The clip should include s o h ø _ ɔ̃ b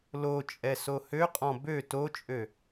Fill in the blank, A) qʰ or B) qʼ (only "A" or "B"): B